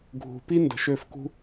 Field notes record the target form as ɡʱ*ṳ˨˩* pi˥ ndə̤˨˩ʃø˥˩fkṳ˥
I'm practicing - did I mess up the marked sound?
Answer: yes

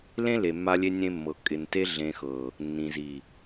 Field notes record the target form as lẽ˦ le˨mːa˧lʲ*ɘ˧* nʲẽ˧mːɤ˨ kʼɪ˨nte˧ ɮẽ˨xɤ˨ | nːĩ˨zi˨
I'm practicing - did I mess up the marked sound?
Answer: yes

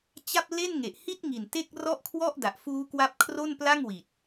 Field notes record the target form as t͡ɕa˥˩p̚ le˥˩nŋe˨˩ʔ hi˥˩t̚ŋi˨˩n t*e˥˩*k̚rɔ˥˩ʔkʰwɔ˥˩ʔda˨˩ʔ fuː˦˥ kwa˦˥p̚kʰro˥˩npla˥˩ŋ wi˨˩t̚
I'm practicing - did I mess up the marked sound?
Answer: no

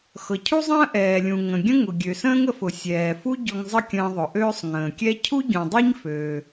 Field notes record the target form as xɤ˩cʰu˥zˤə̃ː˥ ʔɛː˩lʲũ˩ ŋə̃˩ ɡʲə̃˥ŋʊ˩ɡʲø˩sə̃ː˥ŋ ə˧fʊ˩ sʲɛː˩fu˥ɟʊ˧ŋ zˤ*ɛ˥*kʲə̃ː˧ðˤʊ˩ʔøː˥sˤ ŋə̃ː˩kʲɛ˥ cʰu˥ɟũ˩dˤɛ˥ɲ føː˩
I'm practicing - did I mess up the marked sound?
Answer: yes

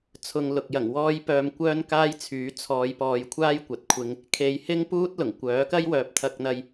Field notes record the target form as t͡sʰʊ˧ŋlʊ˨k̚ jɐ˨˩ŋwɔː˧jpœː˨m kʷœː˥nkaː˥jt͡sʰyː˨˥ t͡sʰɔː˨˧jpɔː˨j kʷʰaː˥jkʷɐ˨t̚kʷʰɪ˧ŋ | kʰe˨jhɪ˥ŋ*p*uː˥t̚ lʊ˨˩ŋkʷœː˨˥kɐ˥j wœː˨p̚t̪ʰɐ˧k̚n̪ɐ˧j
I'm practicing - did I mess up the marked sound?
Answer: no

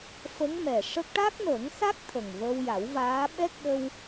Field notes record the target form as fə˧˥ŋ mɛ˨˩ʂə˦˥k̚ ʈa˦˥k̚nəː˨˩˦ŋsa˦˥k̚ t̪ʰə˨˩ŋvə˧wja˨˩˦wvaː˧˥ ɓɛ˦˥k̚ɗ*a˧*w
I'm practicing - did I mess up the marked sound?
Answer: yes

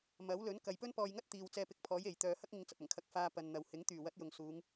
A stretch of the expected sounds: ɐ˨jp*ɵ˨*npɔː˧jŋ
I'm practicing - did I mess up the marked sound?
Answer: yes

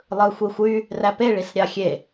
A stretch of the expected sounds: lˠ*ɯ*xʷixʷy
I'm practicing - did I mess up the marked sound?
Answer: no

